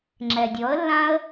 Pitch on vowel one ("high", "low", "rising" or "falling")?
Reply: low